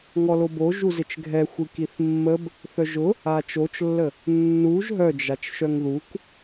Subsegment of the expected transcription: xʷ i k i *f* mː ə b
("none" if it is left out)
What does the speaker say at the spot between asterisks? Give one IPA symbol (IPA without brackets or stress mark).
θ